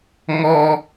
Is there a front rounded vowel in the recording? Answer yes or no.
no